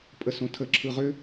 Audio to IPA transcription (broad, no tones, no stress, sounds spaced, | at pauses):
pʼ ə s õ tʰ ə ǁʰ ɯ ʁ ʏ